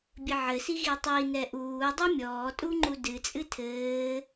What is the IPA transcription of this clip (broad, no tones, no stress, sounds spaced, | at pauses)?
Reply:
bʲ ɘ ʕ ɘ s i ɣ i tˤ i n ɛ ʔ uː dˤ u mʲ ɔː tʼ u ŋ͡ǃ u d ɨ t͡sʼ ɨ tʰ ɘː